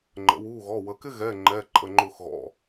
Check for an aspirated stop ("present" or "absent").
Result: absent